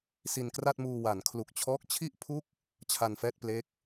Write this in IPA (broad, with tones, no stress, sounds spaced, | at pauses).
s i˧ n k r a˥˩ t̚ m uː˧ w a˩˦ n kʰ l u˨˩ k̚ t͡ɕʰ ɔː˦˥ k̚ t͡ɕʰ i˥˩ ʔ pʰ u˥˩ k̚ | t͡ɕʰ a˧ n f ɛː˥˩ t̚ p l e˦˥ k̚